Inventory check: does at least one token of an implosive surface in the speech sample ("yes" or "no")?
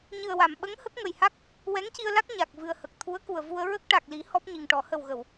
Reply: yes